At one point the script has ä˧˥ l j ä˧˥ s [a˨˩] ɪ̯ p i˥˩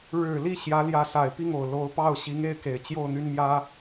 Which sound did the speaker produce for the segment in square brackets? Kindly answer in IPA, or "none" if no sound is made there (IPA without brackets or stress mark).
a˨˩